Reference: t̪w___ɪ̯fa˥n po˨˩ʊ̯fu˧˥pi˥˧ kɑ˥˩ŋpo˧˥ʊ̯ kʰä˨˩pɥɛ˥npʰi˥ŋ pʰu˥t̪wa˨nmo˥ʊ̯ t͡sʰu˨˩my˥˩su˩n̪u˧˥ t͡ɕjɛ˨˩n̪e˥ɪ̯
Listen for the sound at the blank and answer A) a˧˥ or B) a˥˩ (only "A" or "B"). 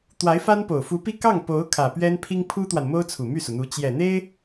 A